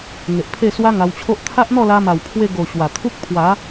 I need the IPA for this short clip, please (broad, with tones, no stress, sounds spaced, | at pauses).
ŋ e˨ ʔ pʰ e˥˧ s w a˦ ŋ a˧ w t͡ɕʰ o˦ ʔ t̪ʰ a˦ ʔ n̪ ɔ˥˧ l a˧ m a˨˩ w pʰ w e˧ ɡ o˨˩ ɕ w a˨˩ t̪ʰ u˦ k̚ pʰ w a˨˦